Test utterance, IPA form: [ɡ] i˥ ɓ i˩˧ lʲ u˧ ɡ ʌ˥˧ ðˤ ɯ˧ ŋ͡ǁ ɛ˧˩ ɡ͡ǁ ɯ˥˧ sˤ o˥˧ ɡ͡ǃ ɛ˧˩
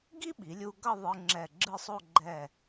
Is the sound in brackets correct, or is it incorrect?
correct